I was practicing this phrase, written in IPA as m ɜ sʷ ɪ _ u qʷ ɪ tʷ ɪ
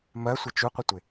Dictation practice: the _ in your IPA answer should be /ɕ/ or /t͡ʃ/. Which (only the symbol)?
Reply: t͡ʃ